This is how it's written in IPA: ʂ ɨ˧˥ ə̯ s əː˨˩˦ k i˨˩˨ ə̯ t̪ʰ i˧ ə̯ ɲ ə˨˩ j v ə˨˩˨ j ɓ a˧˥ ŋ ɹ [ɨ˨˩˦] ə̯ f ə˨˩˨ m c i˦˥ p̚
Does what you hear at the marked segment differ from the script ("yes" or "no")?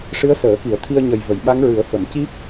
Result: no